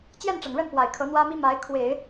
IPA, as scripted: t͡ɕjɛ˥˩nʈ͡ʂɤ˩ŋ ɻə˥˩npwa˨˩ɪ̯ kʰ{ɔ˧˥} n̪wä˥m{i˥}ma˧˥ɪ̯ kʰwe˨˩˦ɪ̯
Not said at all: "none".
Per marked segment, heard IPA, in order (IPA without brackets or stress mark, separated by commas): ɤ˧˥, i˥